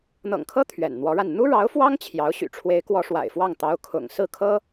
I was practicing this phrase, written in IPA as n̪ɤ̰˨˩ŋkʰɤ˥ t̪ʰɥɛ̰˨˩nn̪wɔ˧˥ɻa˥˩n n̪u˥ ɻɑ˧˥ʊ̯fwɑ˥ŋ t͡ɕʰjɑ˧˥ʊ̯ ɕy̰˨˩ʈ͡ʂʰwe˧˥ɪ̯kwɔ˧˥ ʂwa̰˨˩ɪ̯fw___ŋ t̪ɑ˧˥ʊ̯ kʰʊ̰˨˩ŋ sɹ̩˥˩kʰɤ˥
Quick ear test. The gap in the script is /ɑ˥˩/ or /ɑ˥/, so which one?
ɑ˥˩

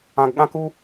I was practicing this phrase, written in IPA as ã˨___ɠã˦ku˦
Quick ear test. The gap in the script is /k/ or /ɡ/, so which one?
ɡ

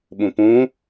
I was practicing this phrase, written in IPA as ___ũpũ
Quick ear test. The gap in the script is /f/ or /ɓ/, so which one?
ɓ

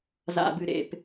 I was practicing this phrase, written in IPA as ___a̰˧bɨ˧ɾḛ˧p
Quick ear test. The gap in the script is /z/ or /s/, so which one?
z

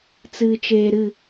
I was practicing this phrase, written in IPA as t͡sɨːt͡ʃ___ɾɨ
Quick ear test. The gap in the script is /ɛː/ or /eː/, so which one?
eː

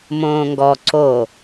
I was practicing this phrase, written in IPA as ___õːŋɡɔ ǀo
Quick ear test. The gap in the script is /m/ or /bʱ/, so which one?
m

